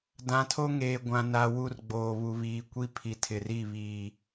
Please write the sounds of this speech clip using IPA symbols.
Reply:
dã˨tʰo˦ ŋeː˨ɡʷã˨na˨ wu˦rɡ͡boː˨ βu˨βiː˨ kʷi˦ pʰi˨tʰɪ˨ri˦˨ βiː˨

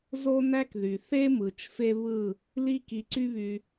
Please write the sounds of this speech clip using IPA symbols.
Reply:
zo˦næ˦kðy˨ θe˦mɯ˨t͡ʃ fe˦βɯ˦˨ | li˦ki˧ǀy˦βy˧

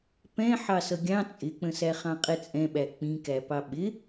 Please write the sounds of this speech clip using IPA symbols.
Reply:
pɛ̃ ħɑsʌɡʲɑ̃ t͡sʼɪk͡pə̃sæ χɑ̃qʼɛt͡sʼɛ̃ɓæ k͡pĩkæpɑ ɓɪ

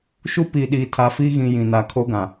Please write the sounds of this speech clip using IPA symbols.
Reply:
ʃu˦pi˨ ɗiː˨tʰa˨fi˦ɣĩ˨ jĩ˨na˨kʰo˦ɡã˨

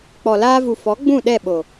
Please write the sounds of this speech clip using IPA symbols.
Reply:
k͡pɔ˨laː˧vu˨ fɔ˨˦ ɡ͡bũ˦˨ ɗɛ˦˨ɓo˨

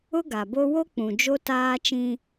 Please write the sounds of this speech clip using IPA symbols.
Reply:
ʊ˦ɡa˨bo˦ wo˦k͡pũ˨ d͡ʒo˦taː˦t͡ʃĩ˦

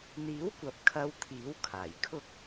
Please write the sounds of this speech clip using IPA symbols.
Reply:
n̪iː˨˥wkʷɐ˨p̚ kʰɐ˧wt̪ʰiː˨˥w kʰaː˨˩jkʰʊ˥k̚

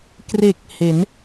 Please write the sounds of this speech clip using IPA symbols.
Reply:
kre˨˩k̚ he˩˦n

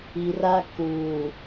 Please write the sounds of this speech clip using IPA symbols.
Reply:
i˨ra˦ kuː˨

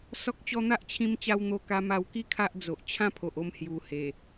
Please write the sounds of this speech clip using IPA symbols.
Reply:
sɔ˦k̚t͡ɕɔ˥˧ n̪a˦ʔt͡ɕʰĩ˧mt͡ɕa˧w n̪o˧ka˧ma˧wki˦ kʰa˦ʔd͡zo˨ʔ t͡ɕʰã˦pʰo˨ʔo˧m hju˨˩ he˨˩

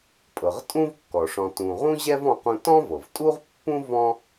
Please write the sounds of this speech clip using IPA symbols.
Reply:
pʼɤ˩ʁtʼũ˥vkːɔ˩ʂɔ̃˨ tũ˨ʁũ˥ʑɛ˥v ɔ̃˦qũ˦ tɔ̃˥vɤ˩v tʼu˥ʁpːũ˥ vɔ̃˥

